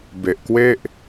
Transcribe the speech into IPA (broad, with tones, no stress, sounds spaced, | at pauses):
b e˨˩ ʔ k w e˥˩ ʔ